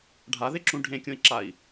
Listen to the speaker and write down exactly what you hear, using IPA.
ɖʱ a ð e ǁ ũ ɖʱ ẽ kʲ õ i̯ ǁ a i̯

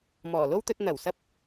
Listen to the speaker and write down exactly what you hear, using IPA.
m ɔː˨˩ l o˥ w t̪ ɵ˧ t̚ n̪ ɐ˨˩ w s ɐ˧ p̚

